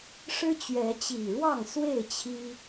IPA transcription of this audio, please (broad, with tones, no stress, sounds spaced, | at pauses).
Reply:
ʂ ɻ̩˦ t͡ɕ ɥ ɛ˨˦ t͡ɕ i˨˩ ɻ w ɑ˥˨ ŋ s w e˥˨ ɪ̯ t͡ɕʰ i˦